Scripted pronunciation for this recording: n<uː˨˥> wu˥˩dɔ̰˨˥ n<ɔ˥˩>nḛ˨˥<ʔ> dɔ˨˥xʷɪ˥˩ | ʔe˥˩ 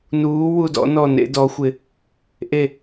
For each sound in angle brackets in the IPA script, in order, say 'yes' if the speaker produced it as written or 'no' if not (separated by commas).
yes, yes, no